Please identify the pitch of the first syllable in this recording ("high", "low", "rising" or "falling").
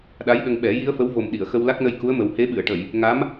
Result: rising